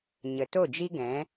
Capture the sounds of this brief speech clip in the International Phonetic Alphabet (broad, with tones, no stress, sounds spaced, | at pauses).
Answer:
ɲ ə˨ t o˦˨ d͡ʒ i˦ ɡ ɛ̃˨˦